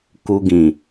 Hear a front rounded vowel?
no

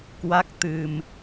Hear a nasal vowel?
no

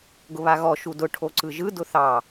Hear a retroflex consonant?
yes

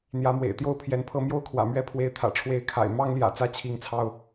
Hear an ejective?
no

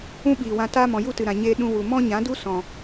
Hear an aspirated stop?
no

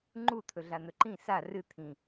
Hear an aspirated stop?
yes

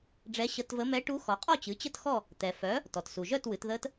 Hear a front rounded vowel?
yes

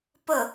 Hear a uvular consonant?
no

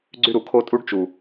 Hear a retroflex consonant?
yes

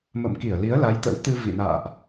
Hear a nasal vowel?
no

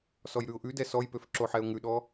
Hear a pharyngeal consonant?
yes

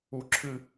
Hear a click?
yes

